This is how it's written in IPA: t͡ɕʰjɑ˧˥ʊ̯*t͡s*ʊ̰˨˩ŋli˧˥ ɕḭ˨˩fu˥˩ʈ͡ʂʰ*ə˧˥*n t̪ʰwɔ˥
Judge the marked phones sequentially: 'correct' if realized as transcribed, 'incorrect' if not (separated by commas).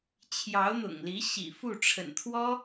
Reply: incorrect, incorrect